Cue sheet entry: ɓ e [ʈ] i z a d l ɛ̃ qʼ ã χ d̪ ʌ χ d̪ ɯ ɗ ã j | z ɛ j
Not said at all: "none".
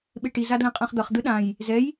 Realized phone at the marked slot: ʈ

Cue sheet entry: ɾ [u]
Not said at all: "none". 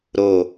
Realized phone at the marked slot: o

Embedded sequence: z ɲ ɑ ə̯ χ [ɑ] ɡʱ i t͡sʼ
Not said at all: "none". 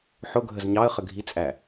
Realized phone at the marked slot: ə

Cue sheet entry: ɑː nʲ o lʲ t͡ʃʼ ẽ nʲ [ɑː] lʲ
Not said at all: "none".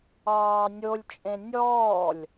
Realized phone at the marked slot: ɔː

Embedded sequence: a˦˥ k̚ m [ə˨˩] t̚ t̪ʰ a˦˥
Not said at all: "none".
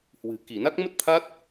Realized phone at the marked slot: ə˦˥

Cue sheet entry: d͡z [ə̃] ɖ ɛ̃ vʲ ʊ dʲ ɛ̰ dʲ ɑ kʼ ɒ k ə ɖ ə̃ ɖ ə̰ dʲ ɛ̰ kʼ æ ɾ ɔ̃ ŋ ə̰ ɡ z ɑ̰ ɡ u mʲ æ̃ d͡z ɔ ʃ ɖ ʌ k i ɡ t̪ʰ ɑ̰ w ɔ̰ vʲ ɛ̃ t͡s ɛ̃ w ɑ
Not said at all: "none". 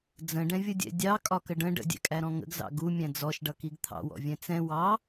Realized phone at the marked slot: ə̃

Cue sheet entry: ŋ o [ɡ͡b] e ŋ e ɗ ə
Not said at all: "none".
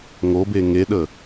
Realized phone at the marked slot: b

